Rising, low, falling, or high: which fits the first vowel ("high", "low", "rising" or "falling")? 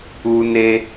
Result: high